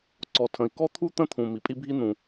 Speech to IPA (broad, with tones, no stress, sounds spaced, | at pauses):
ǀ ɔ˩ tʰ ə̃˩ i̯ k ɔ˥ t̪ʰ u˥ t̪ ə̃˥ t̪ʰ ũ˩ m i˩ pʼ i˥ bʱ i˥ n̪ ũ˩